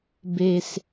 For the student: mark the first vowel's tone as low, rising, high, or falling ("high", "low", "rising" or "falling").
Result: low